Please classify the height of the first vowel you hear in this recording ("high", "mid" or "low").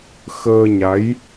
mid